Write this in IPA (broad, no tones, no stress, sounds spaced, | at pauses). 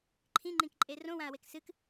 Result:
ǃʰ ĩ ŋ͡ǃ ĩ k ǃʼ e r õ w ã ɐ̯ w e k s ɨ k